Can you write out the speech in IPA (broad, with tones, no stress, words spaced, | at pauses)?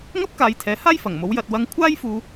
ŋɐ˥p̚kaː˨˧j t̪ʰɛː˨˥haː˥jfɐ˨˩ŋ mo˨˥wjɐ˧t̚ wɐ˧ŋkʷʰaː˥jfuː˧